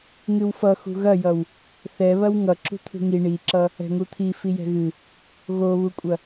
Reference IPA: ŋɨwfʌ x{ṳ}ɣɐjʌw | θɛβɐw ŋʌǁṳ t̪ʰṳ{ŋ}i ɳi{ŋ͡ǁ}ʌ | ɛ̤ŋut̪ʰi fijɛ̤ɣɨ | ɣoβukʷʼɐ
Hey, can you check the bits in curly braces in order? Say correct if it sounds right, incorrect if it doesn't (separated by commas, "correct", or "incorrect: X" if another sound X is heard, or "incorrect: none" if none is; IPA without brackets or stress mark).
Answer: correct, correct, incorrect: ǁ